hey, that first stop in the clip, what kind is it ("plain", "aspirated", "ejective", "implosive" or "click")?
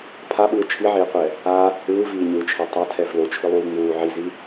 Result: aspirated